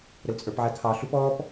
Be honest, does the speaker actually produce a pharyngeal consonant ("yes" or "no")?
yes